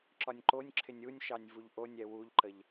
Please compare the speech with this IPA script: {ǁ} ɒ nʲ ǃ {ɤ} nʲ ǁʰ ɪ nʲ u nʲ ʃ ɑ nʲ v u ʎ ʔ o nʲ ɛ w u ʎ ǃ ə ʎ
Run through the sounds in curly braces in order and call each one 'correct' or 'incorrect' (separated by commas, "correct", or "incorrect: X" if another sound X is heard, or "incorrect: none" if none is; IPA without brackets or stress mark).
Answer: correct, incorrect: o